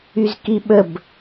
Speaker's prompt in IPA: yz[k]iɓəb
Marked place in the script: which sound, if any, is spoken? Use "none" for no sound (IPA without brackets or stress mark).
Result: k